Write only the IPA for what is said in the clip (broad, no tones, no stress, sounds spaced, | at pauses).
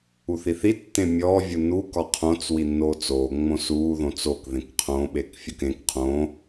u θ i θ i tː ẽ mʲ ɔː vʲ u n u k ɒ qʰ õ t͡s w i nː oː t͡s oː ŋ͡m õ s uː ð õ t͡s o k ð ẽ k qʰ õ ɓ e k fʲ ʊ k ẽ k qʰ õ